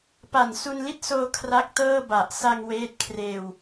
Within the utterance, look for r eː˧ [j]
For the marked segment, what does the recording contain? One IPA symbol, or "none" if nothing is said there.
w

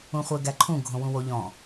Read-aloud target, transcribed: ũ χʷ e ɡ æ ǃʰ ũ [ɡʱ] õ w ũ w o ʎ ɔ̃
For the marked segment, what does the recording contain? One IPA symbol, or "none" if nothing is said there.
ɡʱ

